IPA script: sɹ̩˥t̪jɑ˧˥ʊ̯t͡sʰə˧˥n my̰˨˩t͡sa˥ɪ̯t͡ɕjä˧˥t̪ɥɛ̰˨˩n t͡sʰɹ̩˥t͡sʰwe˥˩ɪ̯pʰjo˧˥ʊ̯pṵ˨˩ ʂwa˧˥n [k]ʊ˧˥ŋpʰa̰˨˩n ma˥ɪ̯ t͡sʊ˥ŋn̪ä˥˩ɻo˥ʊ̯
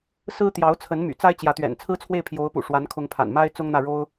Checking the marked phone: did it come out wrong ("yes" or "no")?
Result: yes